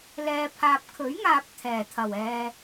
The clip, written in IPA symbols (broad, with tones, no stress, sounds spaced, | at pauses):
l ɛː˨ pʰ aː˨ p̚ kʰ ɵ˨˥ ɥ ŋ aː˨ p̚ t̪ʰ ɛː˨˩ t̪ʰ ɐ˨˩ w ɛː˨